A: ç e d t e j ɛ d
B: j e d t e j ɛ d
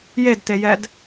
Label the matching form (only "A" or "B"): B